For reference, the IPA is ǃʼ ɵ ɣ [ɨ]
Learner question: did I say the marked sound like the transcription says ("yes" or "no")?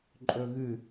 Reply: yes